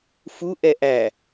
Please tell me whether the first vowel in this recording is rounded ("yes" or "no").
yes